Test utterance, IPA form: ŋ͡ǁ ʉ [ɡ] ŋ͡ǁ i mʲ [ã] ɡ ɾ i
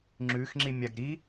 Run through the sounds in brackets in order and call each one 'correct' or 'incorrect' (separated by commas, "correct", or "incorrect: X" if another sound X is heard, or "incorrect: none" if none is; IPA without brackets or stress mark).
incorrect: x, incorrect: a